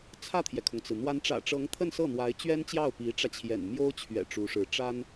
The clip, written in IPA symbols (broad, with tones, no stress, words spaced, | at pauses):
t͡sʰä˥˩t̪ʰjɛ˩kʰʊ˩ŋt͡sɹ̩˩ n̪wa˧˥nʈ͡ʂä̰˨˩ʈ͡ʂɤ˧˥ŋ t̪ʰə˥˧nsɤ˥˩ n̪wa˧˥ɪ̯t͡ɕɥɛ˥nt͡ɕjɑ˥˩ʊ̯ pi˧˥ʈ͡ʂä˧t͡ɕʰjɛ̰˨˩n mjo˥ʊ̯t͡ɕʰɥɛ̰˨˩ ʈ͡ʂu˧˥ʂɻ̩˧˥ ʈ͡ʂa˥n